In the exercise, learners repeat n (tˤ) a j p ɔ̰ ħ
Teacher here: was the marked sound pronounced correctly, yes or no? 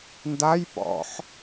no